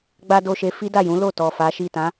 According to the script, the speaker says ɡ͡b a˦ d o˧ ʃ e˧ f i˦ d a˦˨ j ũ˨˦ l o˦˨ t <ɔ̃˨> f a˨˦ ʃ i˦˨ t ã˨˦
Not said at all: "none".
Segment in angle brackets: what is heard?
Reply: ɔ˨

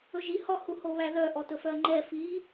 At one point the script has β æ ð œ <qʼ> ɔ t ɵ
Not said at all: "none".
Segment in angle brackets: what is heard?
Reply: ʔ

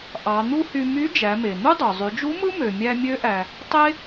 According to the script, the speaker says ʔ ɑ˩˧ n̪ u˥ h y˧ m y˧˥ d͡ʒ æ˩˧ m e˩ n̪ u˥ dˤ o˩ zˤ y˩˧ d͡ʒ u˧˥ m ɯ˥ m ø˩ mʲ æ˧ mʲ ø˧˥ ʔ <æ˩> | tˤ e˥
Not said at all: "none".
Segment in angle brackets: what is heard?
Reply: æ˩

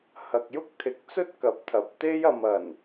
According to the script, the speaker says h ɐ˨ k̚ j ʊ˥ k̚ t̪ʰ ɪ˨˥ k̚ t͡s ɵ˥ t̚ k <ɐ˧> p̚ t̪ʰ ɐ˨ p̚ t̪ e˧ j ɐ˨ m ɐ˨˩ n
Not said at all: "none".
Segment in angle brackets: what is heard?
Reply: ɐ˨˥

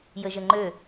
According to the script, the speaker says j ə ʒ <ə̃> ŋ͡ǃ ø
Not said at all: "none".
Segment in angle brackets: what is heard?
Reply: ə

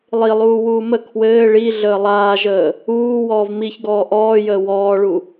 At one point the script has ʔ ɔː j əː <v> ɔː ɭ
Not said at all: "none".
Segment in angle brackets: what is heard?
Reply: w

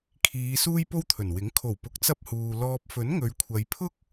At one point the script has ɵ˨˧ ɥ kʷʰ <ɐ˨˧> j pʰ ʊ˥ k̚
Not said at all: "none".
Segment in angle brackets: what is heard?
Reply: ɐ˨˧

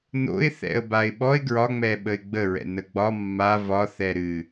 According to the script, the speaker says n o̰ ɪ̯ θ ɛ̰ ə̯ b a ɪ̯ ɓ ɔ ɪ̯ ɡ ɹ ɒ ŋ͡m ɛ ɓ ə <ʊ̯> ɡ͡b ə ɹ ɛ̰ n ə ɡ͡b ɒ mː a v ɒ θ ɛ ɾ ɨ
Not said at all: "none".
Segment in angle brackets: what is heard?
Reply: ɪ̯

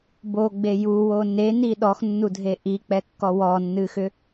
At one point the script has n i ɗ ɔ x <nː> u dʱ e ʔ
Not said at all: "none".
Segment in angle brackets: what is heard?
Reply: nː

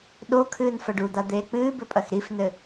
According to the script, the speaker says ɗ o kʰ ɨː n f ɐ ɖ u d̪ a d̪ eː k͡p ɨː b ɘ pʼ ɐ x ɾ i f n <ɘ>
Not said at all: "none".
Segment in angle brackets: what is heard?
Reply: ɘ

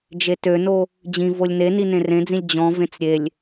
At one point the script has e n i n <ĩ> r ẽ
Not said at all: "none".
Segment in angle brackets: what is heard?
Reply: ẽ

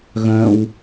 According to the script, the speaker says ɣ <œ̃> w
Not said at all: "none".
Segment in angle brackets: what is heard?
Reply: œ̃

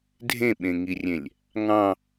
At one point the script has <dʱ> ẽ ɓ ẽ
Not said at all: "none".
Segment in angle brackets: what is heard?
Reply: dʱ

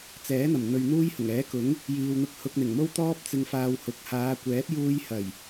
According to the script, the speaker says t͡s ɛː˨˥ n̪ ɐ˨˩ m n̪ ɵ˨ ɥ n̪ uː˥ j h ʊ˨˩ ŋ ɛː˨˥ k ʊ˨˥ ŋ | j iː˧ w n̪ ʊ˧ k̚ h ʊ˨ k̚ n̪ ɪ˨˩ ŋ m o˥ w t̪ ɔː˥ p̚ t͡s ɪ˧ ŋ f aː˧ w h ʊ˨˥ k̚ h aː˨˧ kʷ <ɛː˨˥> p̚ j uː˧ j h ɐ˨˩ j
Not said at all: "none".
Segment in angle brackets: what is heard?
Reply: ɛː˨˥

